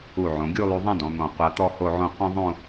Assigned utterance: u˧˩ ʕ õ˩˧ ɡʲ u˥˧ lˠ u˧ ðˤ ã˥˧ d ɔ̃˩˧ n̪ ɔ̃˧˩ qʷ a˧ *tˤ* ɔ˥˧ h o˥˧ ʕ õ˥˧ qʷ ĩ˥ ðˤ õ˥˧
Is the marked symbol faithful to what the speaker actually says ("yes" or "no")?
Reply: no